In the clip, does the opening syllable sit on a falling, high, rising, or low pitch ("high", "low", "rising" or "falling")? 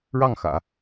falling